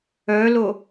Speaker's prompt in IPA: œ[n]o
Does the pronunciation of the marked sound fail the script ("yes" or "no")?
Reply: yes